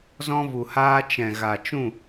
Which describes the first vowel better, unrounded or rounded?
rounded